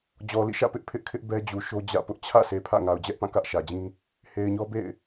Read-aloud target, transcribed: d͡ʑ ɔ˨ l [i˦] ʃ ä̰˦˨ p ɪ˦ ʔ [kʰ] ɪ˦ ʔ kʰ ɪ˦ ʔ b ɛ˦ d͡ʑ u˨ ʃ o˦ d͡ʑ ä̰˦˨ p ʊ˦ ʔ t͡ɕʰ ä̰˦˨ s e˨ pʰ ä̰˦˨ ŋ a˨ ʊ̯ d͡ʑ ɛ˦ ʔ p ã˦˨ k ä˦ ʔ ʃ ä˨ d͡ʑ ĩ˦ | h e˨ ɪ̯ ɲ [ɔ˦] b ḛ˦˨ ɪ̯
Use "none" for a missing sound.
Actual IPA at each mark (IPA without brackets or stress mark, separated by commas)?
ḭ˦˨, pʰ, ɔ˦